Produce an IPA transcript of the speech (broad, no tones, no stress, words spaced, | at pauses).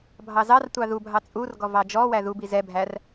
bʱɑzɑrtʷɑ ðubʱɑ t͡sʼurɡɔ vɑd͡ʒɔwæ ðubi zɛbʱær